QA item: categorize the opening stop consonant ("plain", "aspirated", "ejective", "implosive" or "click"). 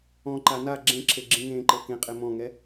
click